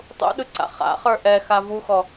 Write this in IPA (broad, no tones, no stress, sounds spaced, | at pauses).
tˤ ṵ ɗ ɯ ǀ a̰ χ a̰ χ ə˞ ʔ ɛ x a v u x ɔ